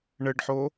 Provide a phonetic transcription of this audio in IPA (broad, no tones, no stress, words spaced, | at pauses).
ɳɘɖħo